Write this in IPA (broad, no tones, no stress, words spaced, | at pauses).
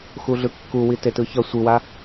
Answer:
xuɮɯkːuwi tetɯçʌ sʷɯwa